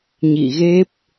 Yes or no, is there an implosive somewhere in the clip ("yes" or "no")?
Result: no